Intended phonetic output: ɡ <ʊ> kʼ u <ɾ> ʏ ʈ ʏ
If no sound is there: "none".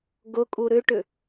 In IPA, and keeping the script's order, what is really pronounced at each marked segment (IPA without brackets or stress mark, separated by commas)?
ʊ, ɾ